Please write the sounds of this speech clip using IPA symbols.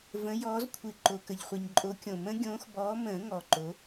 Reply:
v ə̃˨˦ j ɔː˨˦ z kʷʰ ɨ˨ ǃ o˨ k ə˨ ʎ χʷ ɨ˨ ɲ ǃʼ o˨˦ kʲ õ˨˩˦ m ə̃˨˦ ɡʲ õː˨˦ x b ɔː˨˦ m ə̃ː˨˩˦ ŋ ɔ˨ ǃ o˨˦

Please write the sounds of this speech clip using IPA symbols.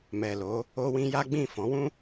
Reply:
m ɛ˨ l o˨˦ | o˧ w ĩ˧ j a˦ ɡ͡b ĩ˦˨ f ɔ̃˨˦ w ũ˦

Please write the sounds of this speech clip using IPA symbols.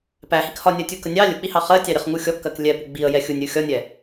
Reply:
p æ h i k h ɒ nʲ ɜ tʲ u k ə nʲ ɑ lʲ ʊ k͡p i h ɑ χ ɜ tʲ ɑ ɾʲ ʌ χ ŋ u xʲ ɔ kː ɜ k lʲ ɛ p u ɡ͡b i ə̯ j ɛ xʲ u nʲ ɾʲ u xʲ ɒ nʲ ɛ

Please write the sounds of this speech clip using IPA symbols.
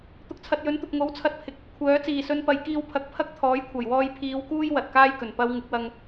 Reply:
t̪ ʊ˨ k̚ t͡sʰ ɐ˨ t̚ j ɵ˨˥ n t̪ ʊ˨ k̚ ŋ o˨˥ w t͡sʰ ɐ˧ t̚ pʰ ɪ˨ k̚ | kʷʰ œː˨˥ t͡s iː˨˩ s ɵ˨ n p ɐ˨˧ j k iː˧ w pʰ ɐ˨˥ k̚ pʰ ɐ˥ k̚ t̪ʰ ɔː˨˥ j kʷʰ ɐ˨˩ j w ɔː˧ j pʰ iː˨˧ w k uː˥ j w ɐ˨ t̚ k aː˥ j k ɵ˨˩ n p ɐ˧ w ŋ ɪ˨˥ k̚ w ɐ˧ ŋ

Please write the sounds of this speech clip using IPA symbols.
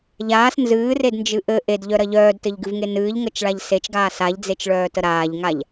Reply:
ʎ aː s n z ɨː r e d n d͡ʒ ɨ ʔ ɘ ʔ e d ʎ œ ɾ ɐ ʎ œː d t ɘ ʎ ɡ ɨ v ŋ e n ɨː ʎ ŋ ə t͡ʃ ɭ a ʎ s e t͡ʃ ɡ aː s a ʎ d͡z e t͡ʃ ɭ œː t ə ɾ aː ʎ ŋ a ʎ

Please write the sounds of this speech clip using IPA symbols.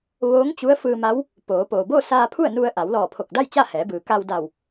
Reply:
ʋ oː˧˥ ŋ t͡ɕ u˧˥ ə̯ f ɯː˧ m a˧˥ w | p oː˩˧ p oː˩ b oː˥˨ s aː˧ pʰ u˥˨ ə̯ n u˧ ə̯ ʔ a˩˧ w l ɔː˧˩ pʰ o˧˩ k̚ d a˥˨ j t͡ɕ a˥˨ h ɛː˩˧ b ɯː˩ k a˧ w d a˧˩ w

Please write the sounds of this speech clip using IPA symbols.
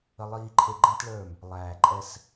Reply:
ə˧ lˠ iː˧ ǃʰ e˧ ɡ͡ǃ ɛ̃˦ t ɭ ə˞˦˨ m | lˠ æː˨ ǃʼ ɛ˧ s

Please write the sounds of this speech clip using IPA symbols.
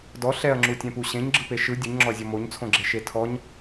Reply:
d ɔ ɬ ɛ ɐ̯ ŋ͡ǁ u tʲ ɛ̃ p u ɕ ẽ ɲ ɡ͡ǁ ɯ p e ʃ ɯ dʲ ɯ ɲ ŋ͡ǁ ɔ ɐ̯ zʲ ɔ m o ɲ t͡sʰ õ ɡ͡ǁ e ʃ e tʰ ɔ ɲ

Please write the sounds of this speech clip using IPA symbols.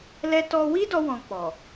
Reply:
l ɛ˦ t ɔ˦ w i˦ d ɔ˧ w ɔ̃˧ k͡p ɔ˨

